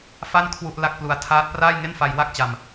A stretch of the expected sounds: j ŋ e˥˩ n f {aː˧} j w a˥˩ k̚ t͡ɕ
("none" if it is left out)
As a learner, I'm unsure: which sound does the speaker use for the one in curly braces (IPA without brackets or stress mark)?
a˧